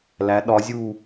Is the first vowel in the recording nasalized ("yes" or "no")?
no